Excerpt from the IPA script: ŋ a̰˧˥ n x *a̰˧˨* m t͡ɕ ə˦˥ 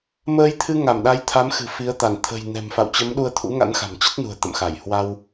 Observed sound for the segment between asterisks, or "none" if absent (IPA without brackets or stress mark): a̤˨˩